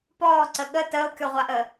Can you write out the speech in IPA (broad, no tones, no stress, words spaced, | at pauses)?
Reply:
pɔːǀə ɠə təːo̯kʲɔʁʷaʔəː